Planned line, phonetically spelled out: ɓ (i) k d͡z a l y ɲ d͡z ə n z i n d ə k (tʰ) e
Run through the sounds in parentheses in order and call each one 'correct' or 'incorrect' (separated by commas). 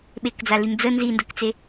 incorrect, incorrect